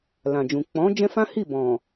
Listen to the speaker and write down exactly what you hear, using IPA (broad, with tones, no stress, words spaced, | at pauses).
lã˨d͡ʒũ˨ k͡pɔ̃˨˦ d͡ʒɛ̃˦fã˦ hi˦˨bɔ̃˨